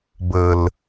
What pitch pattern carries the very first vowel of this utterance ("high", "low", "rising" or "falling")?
low